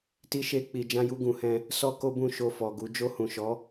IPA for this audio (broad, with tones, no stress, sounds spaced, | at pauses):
t i˧ ʃ e˧ k͡p i˨ d͡ʒ ã˧ j u˧ ɡ ũ˨ h ɛ̃˧ | s ɔ˧ k o˦ b ũ˦˨ ʃ o˧ f ɔ˨ ɡ u˨˦ d͡ʒ o˧ h ũ˨ ʃ ɔ˨˦